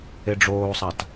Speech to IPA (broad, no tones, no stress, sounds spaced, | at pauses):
e ɖ͡ʐ oː sˤ a t